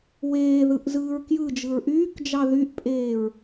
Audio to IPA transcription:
w eː ð ɯ ʔ z ɯː ɹ k j ɯ d͡ʒ ɯ ɹ ʔ yː k d͡ʒ ɑ ð y ʔ pʼ eː ɹ

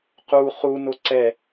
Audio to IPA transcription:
q u χ u n o ǀ ɛ

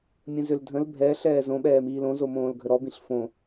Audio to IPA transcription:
mʲ ə̃ z ø l dʱ ə̃ l bʱ ɛ ɬ ɛː z õ ɓ ɛː m iː l õ z o m õː l ɡʱ ə ɾ ɔ b ĩ ɬ f õ

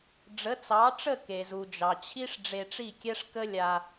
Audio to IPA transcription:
ɖ͡ʐ ə˩˥ t͡s ɑ˩˥ ʈ͡ʂ ə˥˩ k e˩ z u˩ d͡ʒ ɑ˩ t͡ɕʰ i˥ ʂ ɖ͡ʐ e˧ ʈ͡ʂ i˥˩ kʲ ɛ˥ ʂ k ə˥ lʲ a˧

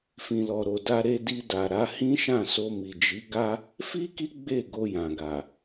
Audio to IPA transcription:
f ĩ˨ l ɔ˨ ɾ o˨ d a˧ ɾ e˧ d i˧ d a˨ ɾ a˨˦ h ĩ˦ ʃ ã˦˨ s o˧ m i˨ d͡ʒ i˨˦ ɡ a˦ | f i˦ k i˦ ɡ͡b e˦˨ ɡ o˧ j ã˨ ɡ a˨

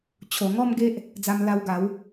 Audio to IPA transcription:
t͡ɕʰ o˨˩ ŋ ɔ˥˧ m ɡ e˦ ʔ | d͡z a˧ m l a˧ w ɡ a˨˦ w

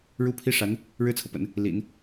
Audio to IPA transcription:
ɻ u˥ pʰ i˥ ʂ a˧˥ n | ɻ ɻ̩˥ t͡sʰ ɤ˨ p ə̰˨˩˦ n | l ḭ˨˩˦ n

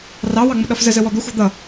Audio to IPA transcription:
r ɑ w ɑ ŋ͡m ʊ ɗ ʌ f z ə z ə w ɔ d̪ ʊ xʷ ɑ̤ d̪ ʌ

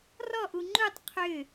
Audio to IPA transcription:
r ɔ ʔ u ŋ͡ǃ u tˤ qʰ ʏ

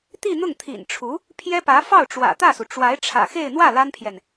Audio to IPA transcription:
t̪ i˥˧ n̪ ʊ˥˩ ŋ t̪ʰ ḭ˨˩ n ʈ͡ʂʰ u˧˥ | pʰ j ɛ˥ p ä˧˥ f ɑ˥˩ ʊ̯ ʈ͡ʂ w ä̰˨˩ t̪ ä˥˩ s u˩ ʈ͡ʂ w a˧˥ ɪ̯ ʈ͡ʂʰ ä̰˨˩ x e˥˧ ɪ̯ n̪ w ä˥˩ l a˥ n pʰ j ɛ˨ n

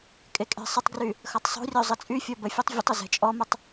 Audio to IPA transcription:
kʼ e kʼ e̤ sˤ ə tˤ ɡ r y | x ʌ tˤ sˤ o̤ rʲ o zˤ ə t͡sʼ y fʲ ɔ b ə fʲ ɛ tˤ vʲ ə tˤ ə z ɛ̤ t͡ʃʼ ɔ m ʊ tˤ

